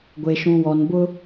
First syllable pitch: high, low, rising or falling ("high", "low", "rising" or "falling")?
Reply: low